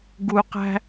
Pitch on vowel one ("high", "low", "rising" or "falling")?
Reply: low